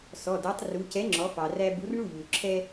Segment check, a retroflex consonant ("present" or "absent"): present